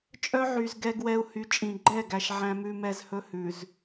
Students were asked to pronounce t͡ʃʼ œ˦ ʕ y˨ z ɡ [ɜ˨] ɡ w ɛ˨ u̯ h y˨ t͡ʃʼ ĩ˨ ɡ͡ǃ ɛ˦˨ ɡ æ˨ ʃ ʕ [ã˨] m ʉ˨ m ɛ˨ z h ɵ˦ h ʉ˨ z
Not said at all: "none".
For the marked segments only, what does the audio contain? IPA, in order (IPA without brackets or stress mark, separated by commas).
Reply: ɛ˨, æ̃˨